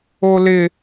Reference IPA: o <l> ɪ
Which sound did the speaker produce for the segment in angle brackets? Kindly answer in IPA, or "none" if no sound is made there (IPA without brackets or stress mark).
l